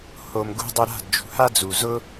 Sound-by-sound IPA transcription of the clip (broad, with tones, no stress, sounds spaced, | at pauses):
h o˨ m ɡ ṳ˧ dˤ o˧ ɾ a̤˦˨ d d͡ʒ ṳ˨ h a˦ d͡z u˨ z ʊ˦